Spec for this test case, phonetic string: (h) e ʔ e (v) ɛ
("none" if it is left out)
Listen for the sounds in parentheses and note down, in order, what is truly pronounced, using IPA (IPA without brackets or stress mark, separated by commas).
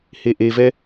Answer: h, v